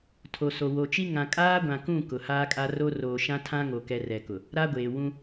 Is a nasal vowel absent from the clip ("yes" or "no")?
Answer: no